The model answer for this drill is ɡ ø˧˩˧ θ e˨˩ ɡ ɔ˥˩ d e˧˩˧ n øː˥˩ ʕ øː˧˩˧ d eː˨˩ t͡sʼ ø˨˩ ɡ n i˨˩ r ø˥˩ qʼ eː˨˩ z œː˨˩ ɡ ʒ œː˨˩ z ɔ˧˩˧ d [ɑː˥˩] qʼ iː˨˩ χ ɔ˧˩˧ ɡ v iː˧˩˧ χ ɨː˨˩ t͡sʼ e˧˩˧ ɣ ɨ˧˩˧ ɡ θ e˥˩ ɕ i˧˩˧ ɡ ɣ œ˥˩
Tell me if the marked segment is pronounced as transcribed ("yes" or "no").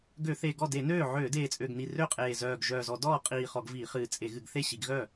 no